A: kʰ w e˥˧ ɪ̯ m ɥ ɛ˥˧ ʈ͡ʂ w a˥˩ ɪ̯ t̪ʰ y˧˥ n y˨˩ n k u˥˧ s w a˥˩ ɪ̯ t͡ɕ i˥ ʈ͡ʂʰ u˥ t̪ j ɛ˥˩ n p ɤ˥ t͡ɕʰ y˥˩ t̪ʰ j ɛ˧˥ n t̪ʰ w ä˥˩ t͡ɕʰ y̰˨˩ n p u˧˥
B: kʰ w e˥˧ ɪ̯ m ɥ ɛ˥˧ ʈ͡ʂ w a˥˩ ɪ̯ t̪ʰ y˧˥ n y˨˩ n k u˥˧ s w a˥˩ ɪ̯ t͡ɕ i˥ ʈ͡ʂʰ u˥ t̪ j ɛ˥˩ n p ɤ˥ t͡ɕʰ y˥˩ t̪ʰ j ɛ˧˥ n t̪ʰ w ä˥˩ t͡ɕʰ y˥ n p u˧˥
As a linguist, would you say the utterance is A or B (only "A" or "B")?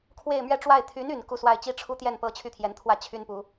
B